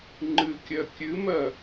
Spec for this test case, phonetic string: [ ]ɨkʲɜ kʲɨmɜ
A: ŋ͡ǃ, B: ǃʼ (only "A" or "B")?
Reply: A